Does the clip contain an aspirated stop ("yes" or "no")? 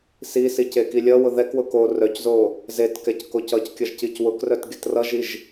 no